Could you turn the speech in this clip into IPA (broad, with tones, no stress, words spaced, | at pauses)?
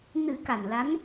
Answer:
nɨ˨˩˦ ka˨˩nla˧˥n